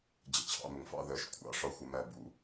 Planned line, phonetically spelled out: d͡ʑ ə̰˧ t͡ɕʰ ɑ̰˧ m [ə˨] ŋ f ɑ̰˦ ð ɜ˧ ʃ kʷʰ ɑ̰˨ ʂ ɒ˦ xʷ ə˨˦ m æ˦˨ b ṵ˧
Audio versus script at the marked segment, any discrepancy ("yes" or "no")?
yes